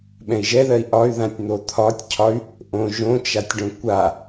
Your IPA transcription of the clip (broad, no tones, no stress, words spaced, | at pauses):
ɓɛ̃i̯ʒɛðɜi̯ ʔɒy̯ðãtʲ n̪ot̪ʰɒtʲcʰɒy̯ | ʔõ ʒõt͡ʃatʲɖõ kʷa